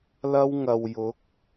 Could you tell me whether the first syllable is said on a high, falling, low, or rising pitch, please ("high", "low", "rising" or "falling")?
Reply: high